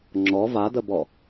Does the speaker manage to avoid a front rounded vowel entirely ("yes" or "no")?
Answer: yes